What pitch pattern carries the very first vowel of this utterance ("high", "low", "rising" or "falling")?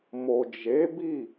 low